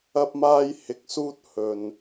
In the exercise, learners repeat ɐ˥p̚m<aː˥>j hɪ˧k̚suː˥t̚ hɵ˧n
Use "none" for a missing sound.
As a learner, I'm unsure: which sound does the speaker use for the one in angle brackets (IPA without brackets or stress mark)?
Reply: aː˥